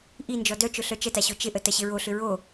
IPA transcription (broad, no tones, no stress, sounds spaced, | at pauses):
ʔ i n d͡ʒ ɔ d œ t͡ʃ ʊ ɬ œ t͡ʃ ə t a ɕ o t͡ʃ ɪ ʔ ə t ɐ ɕ ɪ ɹ o ɬ ʏ ɹ o